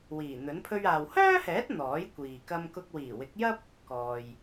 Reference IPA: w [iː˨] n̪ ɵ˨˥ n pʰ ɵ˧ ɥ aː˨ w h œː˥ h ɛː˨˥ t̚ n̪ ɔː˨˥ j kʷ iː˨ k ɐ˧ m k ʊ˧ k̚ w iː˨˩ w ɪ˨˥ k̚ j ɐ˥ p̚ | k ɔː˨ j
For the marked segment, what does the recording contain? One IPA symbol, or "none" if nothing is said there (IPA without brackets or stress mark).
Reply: iː˨˩